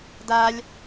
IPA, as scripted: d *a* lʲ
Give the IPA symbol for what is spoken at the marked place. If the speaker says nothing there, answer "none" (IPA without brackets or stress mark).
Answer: a